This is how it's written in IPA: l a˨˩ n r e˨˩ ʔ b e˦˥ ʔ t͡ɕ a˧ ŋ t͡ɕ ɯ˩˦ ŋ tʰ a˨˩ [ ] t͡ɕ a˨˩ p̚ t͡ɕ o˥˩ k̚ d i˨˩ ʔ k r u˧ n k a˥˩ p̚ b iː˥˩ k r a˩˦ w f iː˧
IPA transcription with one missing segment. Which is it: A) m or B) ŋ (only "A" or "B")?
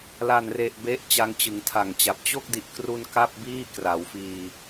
B